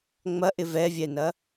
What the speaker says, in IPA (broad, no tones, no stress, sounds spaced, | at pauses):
ŋ͡m ɐ ʔ ɪ v ɛ vʲ ɛ n ɐ